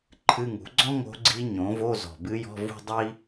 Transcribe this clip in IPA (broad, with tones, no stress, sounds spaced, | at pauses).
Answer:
ǃʰ ɨ˧˥˧ ŋ ṳ˩˥ ɡ͡ǀ ɔ̃˥ ŋ o̤˧˥ ɡ͡ǀ i˧˥ ɲ õ˩˥ v o˧˥˧ z ɔ̤˨˩ b ɨ˧˥ j ɔ̤˧˥˧ v ṳ˥˧ dˤ i˥